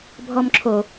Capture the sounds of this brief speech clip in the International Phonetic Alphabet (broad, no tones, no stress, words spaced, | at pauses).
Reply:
bʱɔmǁʰo